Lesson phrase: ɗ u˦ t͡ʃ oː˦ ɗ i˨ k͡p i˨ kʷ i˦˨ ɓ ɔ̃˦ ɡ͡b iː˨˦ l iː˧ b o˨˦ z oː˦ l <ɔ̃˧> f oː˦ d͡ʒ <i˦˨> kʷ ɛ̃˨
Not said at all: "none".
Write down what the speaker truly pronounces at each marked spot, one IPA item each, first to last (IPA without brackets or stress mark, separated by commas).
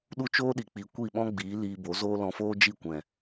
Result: ɔ̃˧, i˦˨